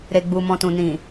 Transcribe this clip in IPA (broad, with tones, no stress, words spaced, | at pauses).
ɾe˨ɡ͡bu˨mɔ̃˨tũ˨ nĩ˨